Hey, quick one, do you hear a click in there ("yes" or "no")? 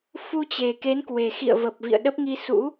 no